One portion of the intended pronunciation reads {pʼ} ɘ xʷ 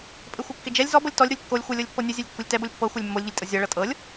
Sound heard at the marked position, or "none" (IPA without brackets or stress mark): pʼ